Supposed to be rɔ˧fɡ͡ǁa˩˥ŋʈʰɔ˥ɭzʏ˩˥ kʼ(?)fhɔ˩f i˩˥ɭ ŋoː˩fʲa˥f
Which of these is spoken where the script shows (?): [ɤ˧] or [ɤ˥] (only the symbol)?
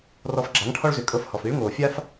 ɤ˧